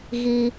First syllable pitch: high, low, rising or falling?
low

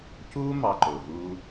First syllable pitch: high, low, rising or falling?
high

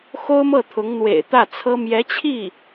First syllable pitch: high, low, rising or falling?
high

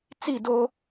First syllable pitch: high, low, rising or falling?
falling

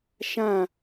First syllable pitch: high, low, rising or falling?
falling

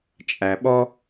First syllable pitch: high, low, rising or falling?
low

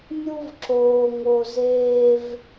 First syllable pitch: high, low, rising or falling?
high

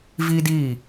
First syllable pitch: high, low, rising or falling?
high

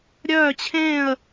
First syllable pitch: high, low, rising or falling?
falling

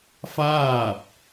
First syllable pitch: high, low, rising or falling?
falling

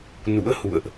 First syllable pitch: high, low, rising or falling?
rising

